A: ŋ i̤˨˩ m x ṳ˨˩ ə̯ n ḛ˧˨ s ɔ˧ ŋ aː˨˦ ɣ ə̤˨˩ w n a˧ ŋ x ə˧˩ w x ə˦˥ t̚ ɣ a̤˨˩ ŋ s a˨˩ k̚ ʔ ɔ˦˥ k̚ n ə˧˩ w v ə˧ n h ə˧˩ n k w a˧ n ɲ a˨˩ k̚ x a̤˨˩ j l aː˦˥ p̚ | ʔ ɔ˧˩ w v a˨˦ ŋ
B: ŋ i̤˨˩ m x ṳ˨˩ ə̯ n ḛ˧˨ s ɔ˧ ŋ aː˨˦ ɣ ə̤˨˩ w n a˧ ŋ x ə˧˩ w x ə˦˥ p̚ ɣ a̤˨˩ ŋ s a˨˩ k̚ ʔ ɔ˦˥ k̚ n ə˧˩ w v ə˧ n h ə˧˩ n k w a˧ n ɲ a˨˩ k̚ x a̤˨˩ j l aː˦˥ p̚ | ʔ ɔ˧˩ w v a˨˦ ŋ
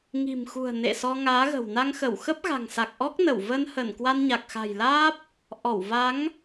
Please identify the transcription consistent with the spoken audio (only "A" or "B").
B